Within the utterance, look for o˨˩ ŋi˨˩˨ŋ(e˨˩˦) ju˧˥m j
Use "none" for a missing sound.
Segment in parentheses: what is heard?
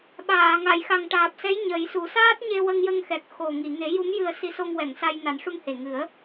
e˨˩˦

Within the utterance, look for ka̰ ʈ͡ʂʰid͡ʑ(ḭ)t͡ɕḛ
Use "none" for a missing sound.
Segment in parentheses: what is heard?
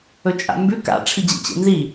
ḭ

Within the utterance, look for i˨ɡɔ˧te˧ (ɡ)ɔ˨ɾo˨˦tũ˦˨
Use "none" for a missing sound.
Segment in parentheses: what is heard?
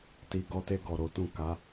ɡ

